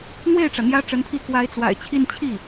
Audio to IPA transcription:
n̪we˥˩ɪ̯ʈ͡ʂä˩ n̪jä˥ʈ͡ʂə˧˥npʰi˥˩ kwa˧˥ɪ̯t͡swa̰˨˩ɪ̯t͡ɕʰi˥˧n t͡ɕʰi˥˩

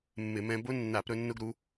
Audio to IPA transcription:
mːɪ˧˩˧mɛ̃˧bʊ˦˥ nːa˧˩˧pɾɵ˧ nːʊ˧ɡɾu˩˧

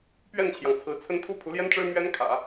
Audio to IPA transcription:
pɥɛ˥˩nt͡ɕʰjɑ˩ŋt͡sʰɹ̩˧˥t͡sʰə˥n t̪ʰu˥pʰu˧˥ljɛ˥nʈ͡ʂɻ̩˥ mɥɛ˥nkʰä̰˨˩˦

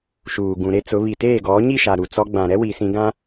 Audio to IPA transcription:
ʃuː˨ɡũ˨ɾe˦t͡sʊ˨˦ βi˨teː˦˨ɡɔ˨˦ ɲi˦˨ʃa˨ ɾu˨t͡sɔ˦ ɡ͡bã˨ɾɛ˦wi˨ sĩ˦ɡã˦

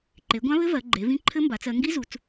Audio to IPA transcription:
ǃe˩˧ɡʷã˦˥βɘ˦˥ vɜ˩˧ɡ͡ǃe˩˧vĩ˦˥ ǃʰɘ˦˥mba˩˧t͡s ɜ˩˧ ŋɡi˦˥zu˩˧t͡s

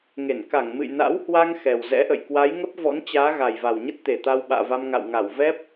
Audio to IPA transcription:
ŋe˧˩n ka˧˩ŋ mɨ̰˧˨jna̰˧˥whwa˧ŋ xɛ˨˩w zɛ̰˧˥ʔə̰˧˨j kwa˨˦jŋə˦˥p̚vɔ̰˧˥nt͡ɕaː˨˦ ɣa˨˩jva˨˩wɲə˦˥t̚ t̪e˨˩t̪a˧wɓa̰ː˧˨va˧m ŋa̰˧˨wŋa˧˩w vɛ˦˥p̚

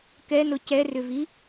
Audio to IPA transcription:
kɛnʊ cɛrʏvi

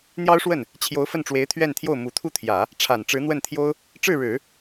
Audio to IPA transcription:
n̪jɑ˥ʊ̯ʂwə˥˩n | t͡ɕʰjo˧˥ʊ̯fə˥˩nʈ͡ʂwe˧˥ɪ̯ t̪ʰɥɛ˥˧nt̪ʰjo˥˩ʊ̯ mu˨˩t̪ʰu˥˩t̪ʰjä˨˩˦ | ʈ͡ʂʰa˨˩nʈ͡ʂɻ̩˧˥n̪wə˥˩nt̪ʰjo˥ʊ̯ | ʈ͡ʂɻ̩˥˩ɻɻ̩˨˩˦

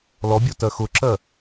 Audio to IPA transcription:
lɔbʲɔ tɜxʊǁɜ

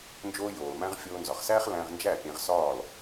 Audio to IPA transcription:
nd͡ʒoː˧ joː˩lmæ̃˧ʁ fʲoː˧nzɒ˩χsæː˥χ læ̃˧ʁnd͡ʒæ˥˩ pʲẽ˧ʁsɒː˥˩l

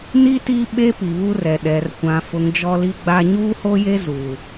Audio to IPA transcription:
ni˦ ti˦ɓe˦ pi˨βu˦rɛ˨ ɗɛ˨r kʷã˨fʊ˨ŋ d͡ʒɔ˦li˦ɡ͡ba˦ ɲuː˦ho˦je˦ zuː˨

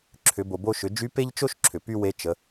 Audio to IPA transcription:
ǁʰʏ˩˧bo˩bo˧ʃʏ˩˧ d͡ʒy˧˥pe˥ʎt͡ʃo˥ʃ ǁʰʏ˩py˥we˧˥ t͡ʃə˩˧

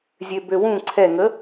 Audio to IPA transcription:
zʲøbøwũ ǀʰɛŋə

